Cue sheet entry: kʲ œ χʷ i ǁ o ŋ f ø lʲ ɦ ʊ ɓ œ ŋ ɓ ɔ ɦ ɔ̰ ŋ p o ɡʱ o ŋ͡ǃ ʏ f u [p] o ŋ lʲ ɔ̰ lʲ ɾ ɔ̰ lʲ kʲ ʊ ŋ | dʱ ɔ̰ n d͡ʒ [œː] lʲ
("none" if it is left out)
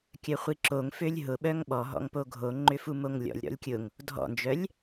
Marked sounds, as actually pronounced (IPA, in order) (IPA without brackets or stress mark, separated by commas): m, œ